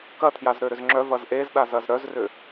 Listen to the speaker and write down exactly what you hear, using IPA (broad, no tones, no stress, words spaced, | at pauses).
kɐtʰjaz ɾøɾʏzŋ͡ǁœ vɐzʔezɗaz ɐzɾœzrʏ